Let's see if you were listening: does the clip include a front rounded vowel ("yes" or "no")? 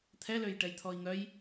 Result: yes